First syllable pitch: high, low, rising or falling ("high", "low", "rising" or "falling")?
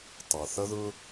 low